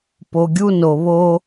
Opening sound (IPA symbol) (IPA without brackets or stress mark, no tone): p